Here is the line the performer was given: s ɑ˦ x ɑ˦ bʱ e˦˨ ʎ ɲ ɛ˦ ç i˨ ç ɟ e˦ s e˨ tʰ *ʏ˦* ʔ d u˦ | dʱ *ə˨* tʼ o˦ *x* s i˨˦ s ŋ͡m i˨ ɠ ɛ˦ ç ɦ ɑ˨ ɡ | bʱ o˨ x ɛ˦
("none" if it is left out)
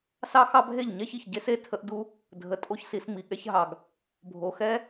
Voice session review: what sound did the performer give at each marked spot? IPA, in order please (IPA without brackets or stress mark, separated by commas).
ə˦, ə˨, ç